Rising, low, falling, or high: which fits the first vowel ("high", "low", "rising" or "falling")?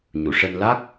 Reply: low